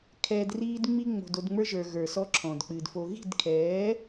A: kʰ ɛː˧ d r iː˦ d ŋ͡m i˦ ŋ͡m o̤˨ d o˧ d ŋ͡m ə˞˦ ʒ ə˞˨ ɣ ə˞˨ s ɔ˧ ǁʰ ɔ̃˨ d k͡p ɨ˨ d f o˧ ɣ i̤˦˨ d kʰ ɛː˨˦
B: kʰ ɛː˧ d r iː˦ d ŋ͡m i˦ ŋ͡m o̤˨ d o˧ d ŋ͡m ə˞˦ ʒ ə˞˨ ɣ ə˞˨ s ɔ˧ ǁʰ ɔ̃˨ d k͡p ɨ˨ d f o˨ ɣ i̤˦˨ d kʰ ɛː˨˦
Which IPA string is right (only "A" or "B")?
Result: A